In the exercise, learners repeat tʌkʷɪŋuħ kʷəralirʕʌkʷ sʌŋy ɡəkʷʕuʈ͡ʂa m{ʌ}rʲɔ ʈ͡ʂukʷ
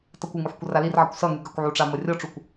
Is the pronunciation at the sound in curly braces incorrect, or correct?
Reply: correct